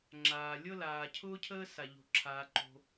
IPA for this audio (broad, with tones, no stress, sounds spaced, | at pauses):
ŋ͡ǁ aː˩ lʲ ɤ˥ l aː˩ cʰ ʊː˥ cʰ əː˥ s a˩ ʎ o̤˩ ǁʰ aː˩ ǃ o̤˩